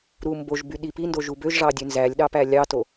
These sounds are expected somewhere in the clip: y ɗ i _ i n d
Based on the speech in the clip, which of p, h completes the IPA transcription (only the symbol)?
p